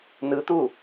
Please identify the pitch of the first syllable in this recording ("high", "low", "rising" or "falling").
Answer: rising